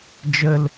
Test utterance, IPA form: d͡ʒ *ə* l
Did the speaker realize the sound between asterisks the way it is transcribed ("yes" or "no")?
yes